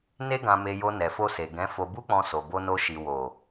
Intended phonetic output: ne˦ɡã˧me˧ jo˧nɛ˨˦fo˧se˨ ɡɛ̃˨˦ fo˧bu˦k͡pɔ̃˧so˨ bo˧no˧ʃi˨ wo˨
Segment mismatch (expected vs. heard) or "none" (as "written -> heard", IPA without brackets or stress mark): ɛ˨˦ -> ɛ˨